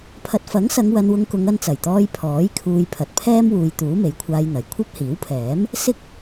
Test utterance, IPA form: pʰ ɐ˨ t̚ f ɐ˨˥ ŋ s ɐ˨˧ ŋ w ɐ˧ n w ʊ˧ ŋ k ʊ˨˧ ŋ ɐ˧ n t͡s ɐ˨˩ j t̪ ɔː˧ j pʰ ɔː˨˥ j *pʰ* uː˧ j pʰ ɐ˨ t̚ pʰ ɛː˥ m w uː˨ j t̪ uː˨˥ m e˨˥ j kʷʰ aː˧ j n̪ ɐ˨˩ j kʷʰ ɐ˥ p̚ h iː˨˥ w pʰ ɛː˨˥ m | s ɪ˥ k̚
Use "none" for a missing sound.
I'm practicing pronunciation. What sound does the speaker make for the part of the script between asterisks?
kʰ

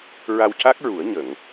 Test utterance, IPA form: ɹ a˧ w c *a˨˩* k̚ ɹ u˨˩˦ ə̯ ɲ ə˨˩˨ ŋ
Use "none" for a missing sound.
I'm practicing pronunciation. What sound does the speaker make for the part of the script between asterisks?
a˦˥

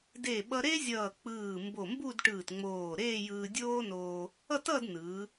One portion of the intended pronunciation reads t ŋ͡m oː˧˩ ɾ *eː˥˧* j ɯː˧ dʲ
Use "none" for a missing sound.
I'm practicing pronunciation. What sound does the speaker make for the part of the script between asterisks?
eː˥˧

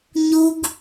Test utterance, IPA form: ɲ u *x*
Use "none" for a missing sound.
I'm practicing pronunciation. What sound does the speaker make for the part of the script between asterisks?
ɡ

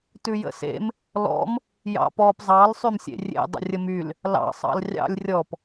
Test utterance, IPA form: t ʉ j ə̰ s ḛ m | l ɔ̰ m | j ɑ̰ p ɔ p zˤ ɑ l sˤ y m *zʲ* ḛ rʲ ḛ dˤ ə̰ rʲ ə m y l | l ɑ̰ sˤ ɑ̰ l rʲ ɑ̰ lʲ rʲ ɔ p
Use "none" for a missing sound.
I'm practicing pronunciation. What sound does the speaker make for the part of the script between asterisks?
sʲ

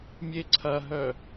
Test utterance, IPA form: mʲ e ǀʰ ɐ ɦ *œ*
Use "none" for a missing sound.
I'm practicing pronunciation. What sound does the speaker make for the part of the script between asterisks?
œ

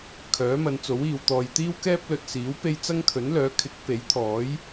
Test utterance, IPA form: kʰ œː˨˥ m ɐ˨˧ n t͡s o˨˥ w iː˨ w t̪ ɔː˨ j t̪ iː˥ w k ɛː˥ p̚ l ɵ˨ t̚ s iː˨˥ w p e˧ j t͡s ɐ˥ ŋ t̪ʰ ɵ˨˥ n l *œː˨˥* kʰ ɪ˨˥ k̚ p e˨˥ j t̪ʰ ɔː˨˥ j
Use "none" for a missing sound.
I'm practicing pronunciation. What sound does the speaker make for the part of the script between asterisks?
œː˨˥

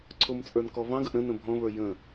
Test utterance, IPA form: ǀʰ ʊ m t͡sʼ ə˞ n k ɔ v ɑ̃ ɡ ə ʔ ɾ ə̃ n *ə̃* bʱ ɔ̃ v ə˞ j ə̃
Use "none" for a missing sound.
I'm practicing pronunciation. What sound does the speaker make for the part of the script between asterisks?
ə̃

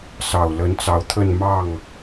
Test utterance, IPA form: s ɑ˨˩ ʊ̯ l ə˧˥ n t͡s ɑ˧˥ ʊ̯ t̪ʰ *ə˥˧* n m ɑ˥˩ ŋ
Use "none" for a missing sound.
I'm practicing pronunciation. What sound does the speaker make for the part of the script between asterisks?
ə˥˧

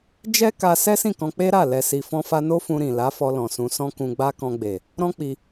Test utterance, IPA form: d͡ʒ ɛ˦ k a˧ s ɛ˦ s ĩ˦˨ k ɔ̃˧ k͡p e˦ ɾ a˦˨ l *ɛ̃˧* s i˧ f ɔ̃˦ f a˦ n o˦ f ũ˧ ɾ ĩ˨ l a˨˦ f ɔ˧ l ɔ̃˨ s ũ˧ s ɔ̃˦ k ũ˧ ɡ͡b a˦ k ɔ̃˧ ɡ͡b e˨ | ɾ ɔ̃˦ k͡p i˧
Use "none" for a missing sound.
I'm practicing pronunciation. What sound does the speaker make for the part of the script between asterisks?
ɛ˧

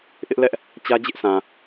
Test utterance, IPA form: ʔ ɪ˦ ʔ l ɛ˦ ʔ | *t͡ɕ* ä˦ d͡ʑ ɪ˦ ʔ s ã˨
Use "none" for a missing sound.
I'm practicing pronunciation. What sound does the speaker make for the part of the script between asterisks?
t͡ɕ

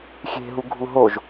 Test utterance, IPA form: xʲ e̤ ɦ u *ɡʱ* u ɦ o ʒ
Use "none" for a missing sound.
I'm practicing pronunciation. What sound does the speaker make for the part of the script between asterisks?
ɡʱ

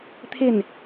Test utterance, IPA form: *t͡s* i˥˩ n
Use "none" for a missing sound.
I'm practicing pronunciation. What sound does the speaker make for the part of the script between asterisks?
t̪ʰ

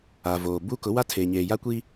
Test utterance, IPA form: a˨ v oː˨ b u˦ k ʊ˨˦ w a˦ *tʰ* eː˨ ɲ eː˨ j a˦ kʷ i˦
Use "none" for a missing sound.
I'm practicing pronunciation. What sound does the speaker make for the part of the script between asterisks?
tʰ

